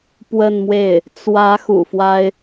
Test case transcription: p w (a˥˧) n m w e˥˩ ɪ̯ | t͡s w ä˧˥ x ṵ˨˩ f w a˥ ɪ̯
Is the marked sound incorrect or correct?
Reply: incorrect